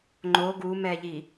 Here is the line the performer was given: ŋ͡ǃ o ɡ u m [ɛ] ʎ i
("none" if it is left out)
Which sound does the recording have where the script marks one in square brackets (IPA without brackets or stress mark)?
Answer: ɛ